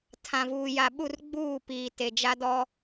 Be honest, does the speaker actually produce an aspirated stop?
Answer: yes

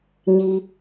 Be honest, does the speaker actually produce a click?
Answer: no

